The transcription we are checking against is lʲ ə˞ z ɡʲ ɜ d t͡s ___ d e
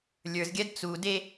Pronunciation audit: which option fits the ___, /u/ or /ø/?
u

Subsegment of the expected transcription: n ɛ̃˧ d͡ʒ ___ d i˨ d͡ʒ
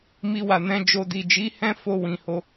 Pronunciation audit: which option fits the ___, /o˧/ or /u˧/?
o˧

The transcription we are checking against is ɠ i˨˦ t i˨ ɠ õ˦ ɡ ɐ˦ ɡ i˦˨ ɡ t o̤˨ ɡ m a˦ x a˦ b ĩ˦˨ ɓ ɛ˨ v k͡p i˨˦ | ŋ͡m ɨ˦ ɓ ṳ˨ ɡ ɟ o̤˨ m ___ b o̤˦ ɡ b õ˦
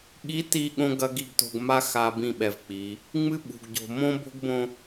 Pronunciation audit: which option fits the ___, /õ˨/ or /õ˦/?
õ˦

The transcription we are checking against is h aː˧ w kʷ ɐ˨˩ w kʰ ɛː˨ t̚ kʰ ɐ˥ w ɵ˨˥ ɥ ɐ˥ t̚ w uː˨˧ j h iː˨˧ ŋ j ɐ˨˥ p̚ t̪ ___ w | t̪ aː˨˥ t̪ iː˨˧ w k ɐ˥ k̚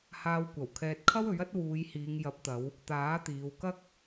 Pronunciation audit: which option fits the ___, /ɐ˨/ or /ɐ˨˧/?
ɐ˨˧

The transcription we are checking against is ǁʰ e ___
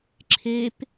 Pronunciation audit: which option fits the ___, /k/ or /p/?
p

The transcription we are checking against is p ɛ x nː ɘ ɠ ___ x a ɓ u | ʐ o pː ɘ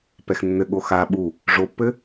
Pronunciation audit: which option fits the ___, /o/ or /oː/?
o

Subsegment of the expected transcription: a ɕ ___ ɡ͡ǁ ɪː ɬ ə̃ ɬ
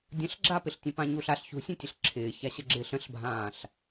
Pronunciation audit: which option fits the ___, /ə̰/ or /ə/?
ə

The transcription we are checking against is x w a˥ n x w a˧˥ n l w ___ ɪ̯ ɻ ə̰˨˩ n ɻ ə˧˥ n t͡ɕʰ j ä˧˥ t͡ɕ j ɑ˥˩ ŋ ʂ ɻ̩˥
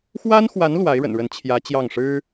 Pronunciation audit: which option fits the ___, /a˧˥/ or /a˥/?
a˧˥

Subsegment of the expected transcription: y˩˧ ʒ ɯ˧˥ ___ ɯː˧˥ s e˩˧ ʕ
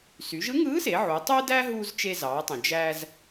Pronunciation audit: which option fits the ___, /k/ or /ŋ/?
ŋ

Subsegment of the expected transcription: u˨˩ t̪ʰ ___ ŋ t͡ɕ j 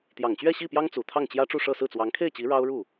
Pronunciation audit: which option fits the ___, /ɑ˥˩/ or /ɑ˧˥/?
ɑ˥˩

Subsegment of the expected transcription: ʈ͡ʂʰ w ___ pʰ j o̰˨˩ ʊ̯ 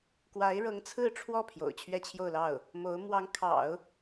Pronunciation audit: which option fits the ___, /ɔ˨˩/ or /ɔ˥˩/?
ɔ˥˩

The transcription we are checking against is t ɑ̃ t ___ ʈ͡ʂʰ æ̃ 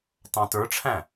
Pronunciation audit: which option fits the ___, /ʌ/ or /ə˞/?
ə˞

